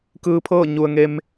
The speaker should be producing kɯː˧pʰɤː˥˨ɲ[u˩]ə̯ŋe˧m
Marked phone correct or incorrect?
correct